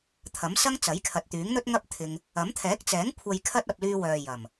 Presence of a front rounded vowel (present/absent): present